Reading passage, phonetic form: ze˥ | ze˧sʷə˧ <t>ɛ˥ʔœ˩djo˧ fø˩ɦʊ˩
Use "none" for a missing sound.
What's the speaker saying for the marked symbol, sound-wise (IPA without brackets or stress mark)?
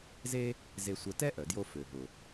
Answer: t